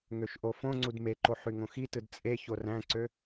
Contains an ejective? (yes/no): yes